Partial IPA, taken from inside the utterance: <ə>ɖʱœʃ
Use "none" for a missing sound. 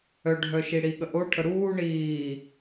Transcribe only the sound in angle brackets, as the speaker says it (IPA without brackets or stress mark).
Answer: œ